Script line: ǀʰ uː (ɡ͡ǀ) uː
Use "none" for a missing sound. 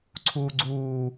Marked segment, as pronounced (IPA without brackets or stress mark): ɡ͡ǀ